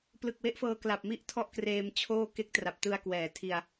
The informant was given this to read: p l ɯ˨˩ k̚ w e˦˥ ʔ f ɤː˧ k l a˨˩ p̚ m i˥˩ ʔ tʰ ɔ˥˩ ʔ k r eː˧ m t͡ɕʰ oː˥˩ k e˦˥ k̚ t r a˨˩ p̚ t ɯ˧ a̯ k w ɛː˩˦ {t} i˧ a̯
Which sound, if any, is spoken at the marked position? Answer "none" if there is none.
tʰ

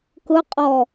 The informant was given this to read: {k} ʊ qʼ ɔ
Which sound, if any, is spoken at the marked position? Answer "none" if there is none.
k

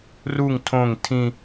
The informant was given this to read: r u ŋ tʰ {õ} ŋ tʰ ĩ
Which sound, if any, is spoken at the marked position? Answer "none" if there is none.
õ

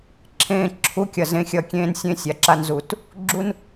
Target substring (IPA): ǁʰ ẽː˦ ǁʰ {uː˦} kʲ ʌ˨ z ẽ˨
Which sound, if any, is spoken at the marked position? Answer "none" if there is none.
u˦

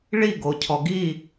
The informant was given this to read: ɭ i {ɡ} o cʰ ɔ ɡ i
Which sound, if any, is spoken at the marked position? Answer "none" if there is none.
ɡ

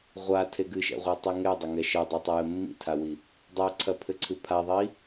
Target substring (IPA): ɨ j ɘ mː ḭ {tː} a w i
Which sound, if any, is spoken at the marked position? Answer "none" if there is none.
tʰ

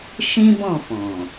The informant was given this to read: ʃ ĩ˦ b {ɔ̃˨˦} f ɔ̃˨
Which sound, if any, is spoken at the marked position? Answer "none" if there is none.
ɔ̃˦˨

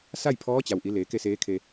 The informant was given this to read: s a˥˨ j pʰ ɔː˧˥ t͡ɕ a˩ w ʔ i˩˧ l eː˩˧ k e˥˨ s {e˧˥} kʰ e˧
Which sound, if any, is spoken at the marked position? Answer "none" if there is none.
eː˧˥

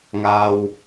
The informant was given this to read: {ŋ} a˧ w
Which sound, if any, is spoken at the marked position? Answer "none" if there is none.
ŋ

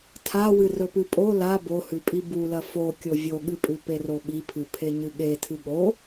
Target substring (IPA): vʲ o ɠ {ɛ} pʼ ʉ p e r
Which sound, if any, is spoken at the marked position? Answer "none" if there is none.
ɨ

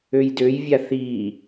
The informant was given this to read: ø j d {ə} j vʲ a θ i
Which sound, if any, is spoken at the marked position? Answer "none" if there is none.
ø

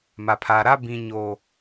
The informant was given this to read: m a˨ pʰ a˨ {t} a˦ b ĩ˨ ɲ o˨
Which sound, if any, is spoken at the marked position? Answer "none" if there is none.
ɾ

